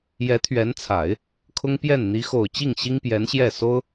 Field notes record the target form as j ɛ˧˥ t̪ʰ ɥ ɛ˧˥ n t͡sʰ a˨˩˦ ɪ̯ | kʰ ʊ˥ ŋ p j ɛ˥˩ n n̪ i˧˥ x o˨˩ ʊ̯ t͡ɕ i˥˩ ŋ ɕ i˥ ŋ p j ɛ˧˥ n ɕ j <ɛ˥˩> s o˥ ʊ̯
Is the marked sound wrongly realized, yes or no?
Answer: no